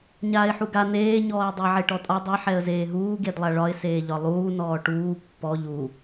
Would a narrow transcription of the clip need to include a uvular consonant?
no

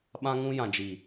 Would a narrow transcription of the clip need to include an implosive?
yes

